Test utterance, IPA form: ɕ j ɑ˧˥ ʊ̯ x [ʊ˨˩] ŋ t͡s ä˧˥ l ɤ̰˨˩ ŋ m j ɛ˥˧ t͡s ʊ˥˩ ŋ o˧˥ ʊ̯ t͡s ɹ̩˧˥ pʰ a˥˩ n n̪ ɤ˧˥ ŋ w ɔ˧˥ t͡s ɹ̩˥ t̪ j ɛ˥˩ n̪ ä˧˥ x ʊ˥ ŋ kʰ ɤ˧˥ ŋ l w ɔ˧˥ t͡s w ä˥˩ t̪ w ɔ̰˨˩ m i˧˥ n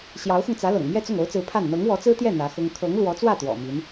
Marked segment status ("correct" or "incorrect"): incorrect